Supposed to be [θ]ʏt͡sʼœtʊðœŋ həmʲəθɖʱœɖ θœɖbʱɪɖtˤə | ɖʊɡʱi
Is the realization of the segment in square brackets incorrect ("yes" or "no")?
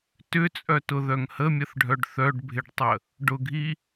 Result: yes